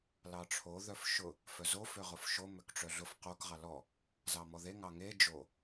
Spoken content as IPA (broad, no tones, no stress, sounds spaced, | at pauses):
l ɑ ʈ͡ʂʰ o ð œ f ʃ ʊ | f œ z o f ø ʁ ʊ f ʃ o m ø k ʈ͡ʂ œ ɮ ʊ f q o k ʁ ɑ l ɔ | z ɑ m ɔ ð e ŋ ɑ ŋ e d͡ʒ o